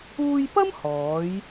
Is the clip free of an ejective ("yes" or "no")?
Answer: yes